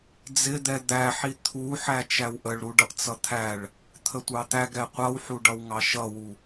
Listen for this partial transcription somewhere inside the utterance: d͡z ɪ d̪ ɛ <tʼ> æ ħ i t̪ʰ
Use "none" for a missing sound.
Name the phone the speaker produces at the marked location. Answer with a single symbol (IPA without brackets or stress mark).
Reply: d̪